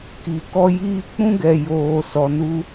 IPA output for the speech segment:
k i˨ k ɔ˧ j iː˧ k͡p ũ˦ ɡ ɛ˨ j oː˨ s ɔ˨ n u˧

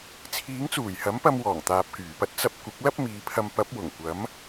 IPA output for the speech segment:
t͡sʰ iː˨˥ ŋ t͡s uː˨˩ j h ɐ˨˥ m p ɐ˧ m w ɔː˨˩ ŋ t̪ aː˨ p̚ k yː˨˩ p ɐ˥ t̚ t͡s ɐ˧ p̚ kʷ ɪ˨˥ k̚ l ɐ˥ p̚ m iː˨˧ pʰ ɐ˧ m p ɐ˨˥ p̚ w ʊ˨˩ ŋ kʷ ɐ˨˥ m

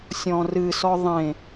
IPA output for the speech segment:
sʲ ɔ̃ r ɨ s ɔ ðˤ ẽ

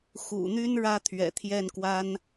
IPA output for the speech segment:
x ṵ˨˩ n̪ y˥ n ɻ ä˥ t̪ʰ ɥ ɛ̰˨˩ t̪ʰ j ɛ˥˩ n k w a˥ n

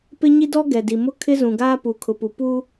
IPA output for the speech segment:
p ɪ˦ ɲ i˦ d ɔ˦ ɡ ɛ˨ d i˨ m ʊ˦˨ kʰ ɪ˦ z ũ˨ ɡ aː˦ p u˨ kʰ ʊ˨ p u˨ p u˦

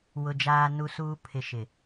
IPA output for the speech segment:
w ʊ˨ d͡ʒ aː˨ n u˨ s uː˨ pʰ ɪ˨ ʃ ɪ˨

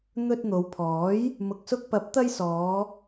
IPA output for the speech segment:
n̪ ɵ˧ t̚ n̪ o˨˧ w pʰ ɔː˨˥ j | m ʊ˨ k̚ s ʊ˧ k̚ p ɐ˨˥ p̚ t̪ ɐ˥ j s ɔː˨˧

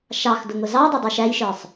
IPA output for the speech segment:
ʃ ɑ x d ʊ ŋ ʊ z ɑ dˤ ə dˤ u ʃ æ j ʃ ə˞ sˤ

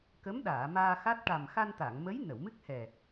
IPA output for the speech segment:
k ə˧˥ m ɗ aː˨˩˨ m aː˧ x a˦˥ t̚ ʈ a˨˩ m x a˧ n t̪ a˨˩˨ ŋ m ə˧˥ j n ə˨˩˨ w m ɨ˦˥ k̚ h ɛ˨˩

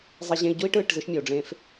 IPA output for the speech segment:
zˤ i˧ ʑ ẽ˧ i̯ ɟ u˦ i̯ ʈ ɯː˦˨ ʈ z ɯ˧ ʃ mʲ ɤ˨ u̯ ɖ͡ʐ ẽ˧ f

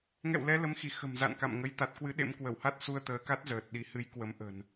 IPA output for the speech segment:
ŋ ɛ̰˧˨ w l ɛ˨˦ l ə˨˦ m x i˧˩ x ə̤˨˩ m z a̰˧˨ n k a̰˧˨ m ŋ ə˧ j t̪ a˨˩ t̚ k w ɨ˨˦ ɗ ḛ˧˥ m k w ə˧˩ w h a˦˥ t̚ s u˧ ə̯ t̪ əː˨˦ k a˦˥ t̚ z əː˨˩ t̚ ɗ i˨˦ h ɨ˨˦ j k w ə˨˦ m ʔ ə̤˨˩ n

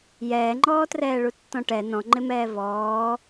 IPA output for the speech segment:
j ɛː ŋ͡ǃ ɔː t r ɛː ɭ u tː ɔ̃ ʈ ɛ n ɔ̃ ŋ͡ǃ ɪ m ɛː v ɔː

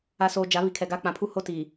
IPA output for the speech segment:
a˨ s oː˨ d͡ʒ a˨˦ β i˨ kʰ ɛ˨ ɡ aː˦ k͡p ã˨ pʰ u˦ h o˦ t iː˨

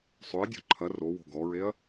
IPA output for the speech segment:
sˤ ø ɐ̯ dʲ o̤ ǃʰ ɐ r o w o̤ ɡ ɔ ɹ e ɐ̯

